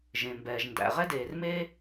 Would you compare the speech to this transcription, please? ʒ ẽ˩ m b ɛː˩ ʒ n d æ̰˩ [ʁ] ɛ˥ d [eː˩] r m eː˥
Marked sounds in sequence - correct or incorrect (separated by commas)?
correct, correct